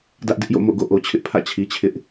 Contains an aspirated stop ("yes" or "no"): yes